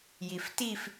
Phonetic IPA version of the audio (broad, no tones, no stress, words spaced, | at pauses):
jiftif